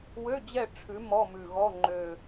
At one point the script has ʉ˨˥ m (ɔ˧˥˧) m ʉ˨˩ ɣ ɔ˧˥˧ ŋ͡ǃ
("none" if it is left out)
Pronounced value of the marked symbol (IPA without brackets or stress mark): ɔ˧˥˧